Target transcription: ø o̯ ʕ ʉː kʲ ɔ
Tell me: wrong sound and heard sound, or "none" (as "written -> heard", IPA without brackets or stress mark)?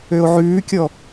none